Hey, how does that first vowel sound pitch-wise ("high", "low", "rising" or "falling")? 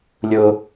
high